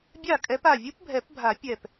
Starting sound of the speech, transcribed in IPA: bʲ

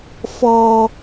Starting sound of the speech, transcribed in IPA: f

